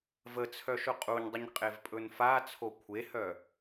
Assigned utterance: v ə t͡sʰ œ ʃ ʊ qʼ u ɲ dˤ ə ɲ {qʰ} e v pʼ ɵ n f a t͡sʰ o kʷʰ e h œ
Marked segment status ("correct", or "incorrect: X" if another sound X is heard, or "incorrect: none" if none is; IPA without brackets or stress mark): incorrect: qʼ